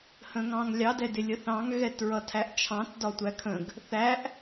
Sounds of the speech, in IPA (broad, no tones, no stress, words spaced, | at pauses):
hə̃ŋɑ̃ŋlʲɑ dɛdɪlʲəθɑ̃ŋ ɣɛtɹʌtʰæʔt͡ʃʰɑ̃t dɒtʷækʰə̃ɡ | θæʔ